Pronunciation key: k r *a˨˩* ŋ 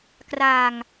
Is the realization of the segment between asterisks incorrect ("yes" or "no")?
yes